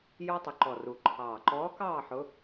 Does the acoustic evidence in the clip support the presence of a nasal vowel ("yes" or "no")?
no